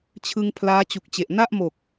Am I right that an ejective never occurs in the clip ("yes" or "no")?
yes